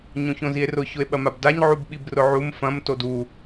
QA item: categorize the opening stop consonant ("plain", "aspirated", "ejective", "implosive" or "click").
implosive